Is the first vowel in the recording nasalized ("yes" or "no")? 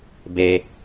no